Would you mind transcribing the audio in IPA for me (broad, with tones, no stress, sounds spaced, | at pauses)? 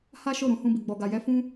h a˦ ʃ o˦˨ ɾ ũ˨˦ h ũ˧ b i˨ ɡ͡b ɔ˨ ɡ a˨ j ɛ˧ f ũ˦